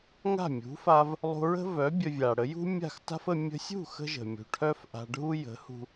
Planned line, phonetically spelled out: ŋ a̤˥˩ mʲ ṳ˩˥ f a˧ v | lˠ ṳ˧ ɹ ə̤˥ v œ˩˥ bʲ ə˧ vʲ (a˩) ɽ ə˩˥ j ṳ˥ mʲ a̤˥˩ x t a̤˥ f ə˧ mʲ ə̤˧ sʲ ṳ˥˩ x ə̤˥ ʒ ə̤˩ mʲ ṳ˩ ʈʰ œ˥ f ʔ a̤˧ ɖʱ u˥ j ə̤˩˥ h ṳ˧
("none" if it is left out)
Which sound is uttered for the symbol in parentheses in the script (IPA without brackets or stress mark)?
a˩